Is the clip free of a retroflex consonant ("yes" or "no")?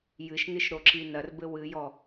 yes